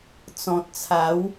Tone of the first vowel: low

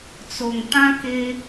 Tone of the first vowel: low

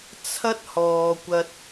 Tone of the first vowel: high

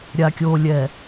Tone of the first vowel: low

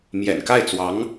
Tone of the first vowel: low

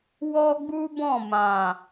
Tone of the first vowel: high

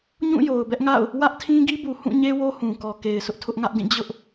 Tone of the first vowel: falling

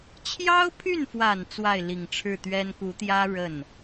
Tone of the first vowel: high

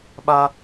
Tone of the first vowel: high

